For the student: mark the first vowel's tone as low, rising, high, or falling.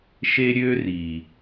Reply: high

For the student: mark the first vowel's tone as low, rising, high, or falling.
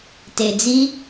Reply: low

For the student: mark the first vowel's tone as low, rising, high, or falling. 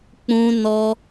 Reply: high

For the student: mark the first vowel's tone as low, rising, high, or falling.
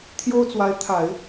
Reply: high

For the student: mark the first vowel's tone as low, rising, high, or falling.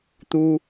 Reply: high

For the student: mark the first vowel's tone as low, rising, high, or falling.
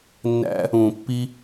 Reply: high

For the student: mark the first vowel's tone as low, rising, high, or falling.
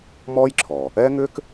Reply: high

